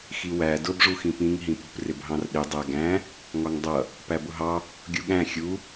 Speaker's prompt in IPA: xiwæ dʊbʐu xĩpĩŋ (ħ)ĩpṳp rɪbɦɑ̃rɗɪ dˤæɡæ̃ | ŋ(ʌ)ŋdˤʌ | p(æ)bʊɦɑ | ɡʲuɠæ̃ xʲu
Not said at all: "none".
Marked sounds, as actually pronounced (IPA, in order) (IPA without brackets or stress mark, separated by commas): ɦ, ɒ, æ